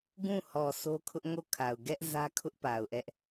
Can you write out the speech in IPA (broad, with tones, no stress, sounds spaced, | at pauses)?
ɡ ũ˦˨ h ɔ˨ sʰ o˦ kʰ ʊ˦ ʔ ŋ o˦˨ kʰ a˨ ʊ̯ ɡ ɛ˦ ʔ z ä˦ kʰ ʊ˦ ʔ p a˨ ʊ̯ ʔ ɛ˦ ʔ